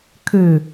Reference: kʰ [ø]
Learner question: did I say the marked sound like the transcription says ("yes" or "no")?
yes